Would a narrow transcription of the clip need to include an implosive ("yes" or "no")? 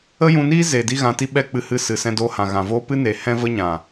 yes